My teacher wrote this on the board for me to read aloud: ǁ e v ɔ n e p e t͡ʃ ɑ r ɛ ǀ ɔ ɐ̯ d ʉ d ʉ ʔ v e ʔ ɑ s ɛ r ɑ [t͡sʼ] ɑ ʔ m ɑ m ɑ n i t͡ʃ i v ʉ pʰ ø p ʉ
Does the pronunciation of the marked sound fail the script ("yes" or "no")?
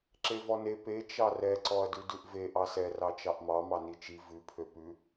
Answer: yes